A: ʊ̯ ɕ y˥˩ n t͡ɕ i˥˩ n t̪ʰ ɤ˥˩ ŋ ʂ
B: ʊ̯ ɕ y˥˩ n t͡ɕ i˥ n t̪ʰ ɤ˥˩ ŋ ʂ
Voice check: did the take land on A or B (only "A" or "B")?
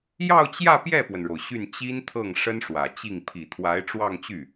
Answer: B